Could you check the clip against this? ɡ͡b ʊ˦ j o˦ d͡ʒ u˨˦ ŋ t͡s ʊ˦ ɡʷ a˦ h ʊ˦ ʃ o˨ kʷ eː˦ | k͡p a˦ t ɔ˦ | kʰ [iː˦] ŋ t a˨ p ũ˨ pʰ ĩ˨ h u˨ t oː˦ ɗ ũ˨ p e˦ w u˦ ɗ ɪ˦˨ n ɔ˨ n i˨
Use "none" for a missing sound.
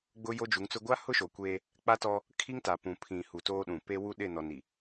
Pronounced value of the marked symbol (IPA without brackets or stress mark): i˦